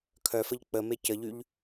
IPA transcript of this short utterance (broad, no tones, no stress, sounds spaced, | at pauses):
kʰ œ f ə ʎ k͡p ə m e c ə ʎ y ʎ